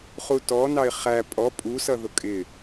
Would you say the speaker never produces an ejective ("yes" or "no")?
no